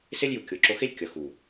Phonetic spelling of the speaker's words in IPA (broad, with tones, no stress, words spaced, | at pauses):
se˦lʲju˨ kʲo˨ǁo˧xe˦lʲ kʲʌ˨xu˨